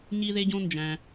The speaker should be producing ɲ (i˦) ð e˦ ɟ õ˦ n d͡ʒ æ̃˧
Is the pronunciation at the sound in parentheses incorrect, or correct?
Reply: correct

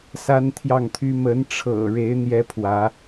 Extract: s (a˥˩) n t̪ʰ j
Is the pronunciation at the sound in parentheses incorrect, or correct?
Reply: incorrect: a˥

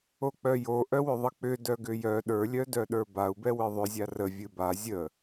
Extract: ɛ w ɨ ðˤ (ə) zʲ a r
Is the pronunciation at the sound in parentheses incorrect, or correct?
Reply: incorrect: ʏ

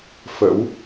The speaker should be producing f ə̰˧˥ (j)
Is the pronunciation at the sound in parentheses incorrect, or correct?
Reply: incorrect: w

